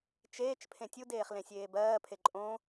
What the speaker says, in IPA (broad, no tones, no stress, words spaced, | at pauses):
t͡ʃeːt͡ʃ pʰẽtʲudeːχ lẽsʲeːbɜːpʰe ǃʼõ